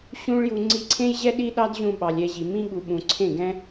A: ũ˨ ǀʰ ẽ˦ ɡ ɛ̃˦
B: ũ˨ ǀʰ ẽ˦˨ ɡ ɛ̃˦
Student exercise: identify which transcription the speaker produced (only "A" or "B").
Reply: B